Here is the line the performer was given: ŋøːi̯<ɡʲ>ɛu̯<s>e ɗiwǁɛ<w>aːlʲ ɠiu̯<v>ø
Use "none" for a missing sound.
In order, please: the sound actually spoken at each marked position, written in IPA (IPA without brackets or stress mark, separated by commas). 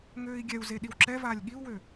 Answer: ɡʲ, z, v, w